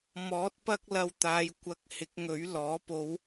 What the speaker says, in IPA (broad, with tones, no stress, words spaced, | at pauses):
mɔː˨˥t̚ pɐ˥k̚lɐ˧wt̪aː˨˧j kʷɐ˨˥k̚ hɪ˨˥k̚ŋɵ˨˥ɥlɔː˨˥ po˨˧w